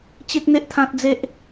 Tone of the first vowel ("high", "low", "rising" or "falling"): high